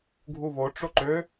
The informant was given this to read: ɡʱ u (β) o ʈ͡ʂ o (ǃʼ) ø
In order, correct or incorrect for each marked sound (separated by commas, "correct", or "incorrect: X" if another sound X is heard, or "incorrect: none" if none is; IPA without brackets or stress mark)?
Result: correct, incorrect: ǃ